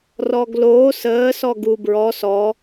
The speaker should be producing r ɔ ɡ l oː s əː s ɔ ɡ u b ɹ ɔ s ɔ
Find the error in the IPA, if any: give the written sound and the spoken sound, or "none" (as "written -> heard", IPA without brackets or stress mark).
none